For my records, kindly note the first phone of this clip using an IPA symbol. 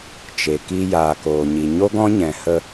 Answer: t͡ʃ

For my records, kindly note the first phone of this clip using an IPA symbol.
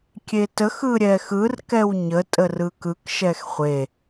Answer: kʲ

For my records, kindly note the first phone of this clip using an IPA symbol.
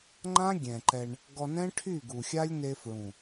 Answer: ŋ͡ǃ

